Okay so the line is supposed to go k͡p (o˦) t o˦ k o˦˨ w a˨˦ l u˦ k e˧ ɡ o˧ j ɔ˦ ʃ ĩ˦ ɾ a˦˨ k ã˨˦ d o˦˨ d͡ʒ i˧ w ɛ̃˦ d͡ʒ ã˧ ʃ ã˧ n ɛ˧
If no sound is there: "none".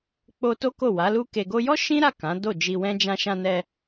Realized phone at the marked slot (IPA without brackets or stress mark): o˧